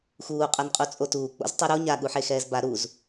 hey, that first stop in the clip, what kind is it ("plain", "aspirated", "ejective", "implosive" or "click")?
ejective